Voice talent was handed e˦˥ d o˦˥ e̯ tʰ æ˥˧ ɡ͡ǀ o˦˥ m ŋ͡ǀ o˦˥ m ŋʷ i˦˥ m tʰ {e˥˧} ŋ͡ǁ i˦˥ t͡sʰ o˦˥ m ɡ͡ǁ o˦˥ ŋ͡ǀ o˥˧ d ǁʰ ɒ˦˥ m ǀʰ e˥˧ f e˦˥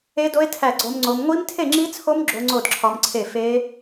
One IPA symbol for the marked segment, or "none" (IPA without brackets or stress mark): e˥˧